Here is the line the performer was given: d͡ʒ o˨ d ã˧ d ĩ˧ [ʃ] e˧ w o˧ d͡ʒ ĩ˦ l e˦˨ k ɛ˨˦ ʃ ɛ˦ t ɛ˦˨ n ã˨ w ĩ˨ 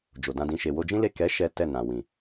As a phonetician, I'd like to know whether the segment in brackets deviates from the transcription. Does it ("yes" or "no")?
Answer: no